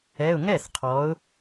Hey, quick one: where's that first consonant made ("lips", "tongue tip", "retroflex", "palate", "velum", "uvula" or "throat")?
velum